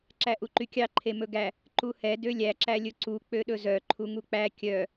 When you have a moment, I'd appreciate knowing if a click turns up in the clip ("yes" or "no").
yes